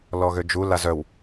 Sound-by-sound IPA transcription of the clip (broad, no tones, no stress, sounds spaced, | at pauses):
l ɔ ɣ ø d͡ʒ u l a z œ w